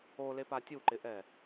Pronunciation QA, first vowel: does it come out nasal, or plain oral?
oral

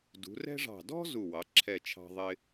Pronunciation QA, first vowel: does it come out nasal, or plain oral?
oral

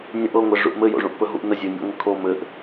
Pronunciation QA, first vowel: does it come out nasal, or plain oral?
nasal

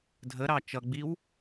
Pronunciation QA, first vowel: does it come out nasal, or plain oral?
oral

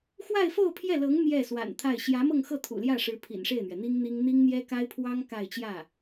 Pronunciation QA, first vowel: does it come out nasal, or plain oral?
oral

